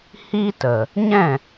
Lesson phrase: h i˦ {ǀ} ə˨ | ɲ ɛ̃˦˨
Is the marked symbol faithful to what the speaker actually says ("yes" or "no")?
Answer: no